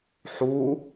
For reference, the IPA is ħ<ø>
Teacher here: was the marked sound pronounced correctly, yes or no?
no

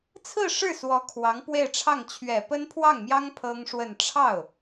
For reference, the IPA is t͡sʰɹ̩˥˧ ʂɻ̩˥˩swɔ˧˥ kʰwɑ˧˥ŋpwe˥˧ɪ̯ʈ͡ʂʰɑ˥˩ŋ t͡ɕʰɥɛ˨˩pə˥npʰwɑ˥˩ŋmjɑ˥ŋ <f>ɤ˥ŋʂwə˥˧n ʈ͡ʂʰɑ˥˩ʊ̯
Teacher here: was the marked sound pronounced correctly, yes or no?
no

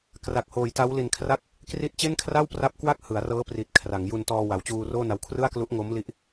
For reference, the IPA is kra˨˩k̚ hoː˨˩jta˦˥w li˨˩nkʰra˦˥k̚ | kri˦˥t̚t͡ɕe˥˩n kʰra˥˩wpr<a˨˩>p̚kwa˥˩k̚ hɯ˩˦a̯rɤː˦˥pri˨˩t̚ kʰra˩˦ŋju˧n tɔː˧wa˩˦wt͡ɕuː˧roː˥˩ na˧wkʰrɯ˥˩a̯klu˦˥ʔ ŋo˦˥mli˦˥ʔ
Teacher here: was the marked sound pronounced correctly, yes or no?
no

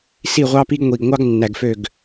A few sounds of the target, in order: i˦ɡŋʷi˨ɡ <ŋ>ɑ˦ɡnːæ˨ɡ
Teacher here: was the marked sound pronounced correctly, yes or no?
no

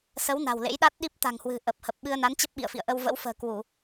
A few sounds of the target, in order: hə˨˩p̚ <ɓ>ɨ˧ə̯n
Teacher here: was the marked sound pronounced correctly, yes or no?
yes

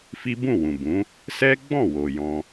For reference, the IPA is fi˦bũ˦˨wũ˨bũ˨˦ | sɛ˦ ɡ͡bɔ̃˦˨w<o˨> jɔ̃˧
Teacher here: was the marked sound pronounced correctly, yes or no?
yes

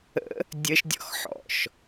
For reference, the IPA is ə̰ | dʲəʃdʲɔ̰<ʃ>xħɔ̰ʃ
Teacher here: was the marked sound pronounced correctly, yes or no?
no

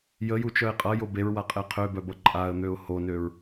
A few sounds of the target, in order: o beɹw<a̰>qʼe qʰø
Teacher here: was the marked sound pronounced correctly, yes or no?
no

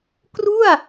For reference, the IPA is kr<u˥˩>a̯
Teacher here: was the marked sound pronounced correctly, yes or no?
yes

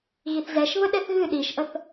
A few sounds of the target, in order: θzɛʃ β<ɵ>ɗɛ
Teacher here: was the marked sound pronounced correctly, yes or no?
no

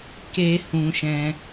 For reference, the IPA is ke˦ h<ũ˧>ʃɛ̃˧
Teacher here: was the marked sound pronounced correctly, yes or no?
yes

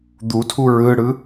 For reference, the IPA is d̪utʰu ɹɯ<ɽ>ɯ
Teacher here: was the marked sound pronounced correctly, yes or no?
yes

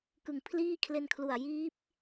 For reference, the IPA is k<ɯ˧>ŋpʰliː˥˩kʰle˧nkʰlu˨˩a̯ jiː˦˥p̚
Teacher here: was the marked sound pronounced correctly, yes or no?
no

